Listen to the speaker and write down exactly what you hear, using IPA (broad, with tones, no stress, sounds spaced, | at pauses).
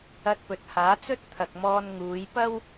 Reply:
ɐ˧ t̚ p ɵ˨ t̚ h aː˨˥ t͡s ɵ˥ t̚ t̪ʰ ɐ˨ k̚ m ɔː˧ n ŋ uː˨˧ j p ɐ˥ w